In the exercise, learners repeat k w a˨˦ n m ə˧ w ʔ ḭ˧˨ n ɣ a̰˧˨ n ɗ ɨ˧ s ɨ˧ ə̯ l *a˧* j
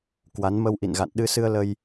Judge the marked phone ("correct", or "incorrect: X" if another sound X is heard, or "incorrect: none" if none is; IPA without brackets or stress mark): incorrect: ə˧